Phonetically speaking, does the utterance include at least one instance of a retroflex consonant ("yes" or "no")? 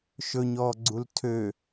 no